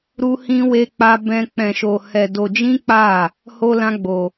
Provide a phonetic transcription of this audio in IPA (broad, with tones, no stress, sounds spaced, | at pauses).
ɾ u˦ h ĩ˦ w e˦ k͡p a˦ b ɛ̃˦ k͡p ɛ̃˧ ʃ o˧ h ɛ˧ d o˧ d͡ʒ ĩ˦ k͡p a˦˨ | h o˦ l ã˦ ɡ͡b o˧